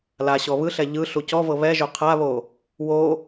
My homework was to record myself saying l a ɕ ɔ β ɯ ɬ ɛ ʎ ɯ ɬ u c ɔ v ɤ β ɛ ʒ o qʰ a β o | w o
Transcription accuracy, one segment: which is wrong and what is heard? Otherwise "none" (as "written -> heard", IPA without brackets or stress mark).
none